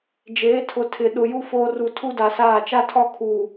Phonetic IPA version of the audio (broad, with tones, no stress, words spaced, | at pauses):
d͡ʒeː˨˦tʰʊ˨ tʰɪ˨ ɗʊ˨ju˦ foː˦ ru˨ tʰu˦da˨saː˦˨ t͡ʃa˦tʰɔ˦˨kʰuː˨